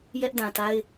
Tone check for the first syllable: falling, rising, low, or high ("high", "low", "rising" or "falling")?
high